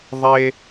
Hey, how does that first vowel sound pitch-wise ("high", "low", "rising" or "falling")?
high